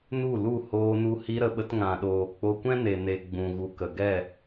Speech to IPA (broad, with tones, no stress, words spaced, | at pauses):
nu˦˨lu˦˨ hoː˧nu˧ hi˧ɾə˨ɓə˧t ŋã˨ɗoː˨ k͡po˧kʷɛ̃˦ne˨ne˨ ɡ͡bũ˨ɣu˨kə˨ ɡɛ˦˨